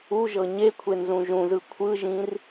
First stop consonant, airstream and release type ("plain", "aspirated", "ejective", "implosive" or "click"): aspirated